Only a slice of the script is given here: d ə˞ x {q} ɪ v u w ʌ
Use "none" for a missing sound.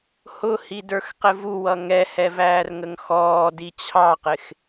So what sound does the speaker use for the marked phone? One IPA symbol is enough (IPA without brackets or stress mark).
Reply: q